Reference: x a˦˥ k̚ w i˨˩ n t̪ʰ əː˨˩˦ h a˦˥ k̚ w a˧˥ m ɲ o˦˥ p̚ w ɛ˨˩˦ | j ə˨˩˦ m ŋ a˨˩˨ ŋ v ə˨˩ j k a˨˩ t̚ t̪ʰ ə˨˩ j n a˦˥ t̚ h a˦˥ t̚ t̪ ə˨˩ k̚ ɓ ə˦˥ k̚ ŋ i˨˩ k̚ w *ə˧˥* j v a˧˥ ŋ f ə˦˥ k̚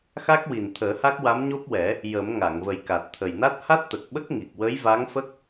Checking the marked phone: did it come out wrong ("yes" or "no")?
no